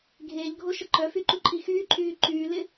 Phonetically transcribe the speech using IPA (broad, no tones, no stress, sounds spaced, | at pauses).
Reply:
ɡʱ eː ʎ ɡʱ o ʃ ə ǃ œ f y ǃ u ǃʼ i x yː ǃʼ yː ǃ yː l ɪ